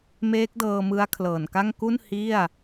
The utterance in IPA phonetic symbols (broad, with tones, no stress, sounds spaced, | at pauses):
m eː˦˥ k̚ d ɤː˧ m ɯ˦˥ a̯ kʰ l ɤː˨˩ n k a˥˩ ŋ k u˥˩ n h i˥˩ a̯